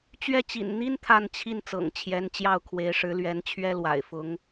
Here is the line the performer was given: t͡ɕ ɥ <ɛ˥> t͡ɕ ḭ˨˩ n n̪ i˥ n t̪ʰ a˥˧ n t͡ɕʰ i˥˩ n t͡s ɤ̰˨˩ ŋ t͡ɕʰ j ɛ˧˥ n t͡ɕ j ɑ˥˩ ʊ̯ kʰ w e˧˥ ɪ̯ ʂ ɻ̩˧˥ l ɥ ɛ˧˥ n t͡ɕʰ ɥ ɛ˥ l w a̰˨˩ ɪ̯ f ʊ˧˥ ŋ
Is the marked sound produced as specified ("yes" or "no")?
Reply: no